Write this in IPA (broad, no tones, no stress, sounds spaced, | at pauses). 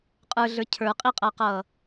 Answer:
qʼ ə˞ ɮ ə˞ cʰ ə˞ qʼ i qʼ ʌː q ʌː